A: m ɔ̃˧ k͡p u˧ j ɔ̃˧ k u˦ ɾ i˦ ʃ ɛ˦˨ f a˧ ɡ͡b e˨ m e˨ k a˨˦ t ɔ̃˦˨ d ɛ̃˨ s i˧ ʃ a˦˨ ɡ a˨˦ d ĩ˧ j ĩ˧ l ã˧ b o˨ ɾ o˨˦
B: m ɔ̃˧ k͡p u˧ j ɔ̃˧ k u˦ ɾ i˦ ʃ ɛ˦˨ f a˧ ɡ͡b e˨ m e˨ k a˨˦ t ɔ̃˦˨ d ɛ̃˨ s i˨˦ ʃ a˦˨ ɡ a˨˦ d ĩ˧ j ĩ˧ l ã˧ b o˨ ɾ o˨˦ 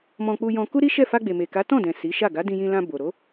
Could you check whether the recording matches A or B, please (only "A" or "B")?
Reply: B